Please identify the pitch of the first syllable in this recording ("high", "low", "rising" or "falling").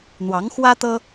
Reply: rising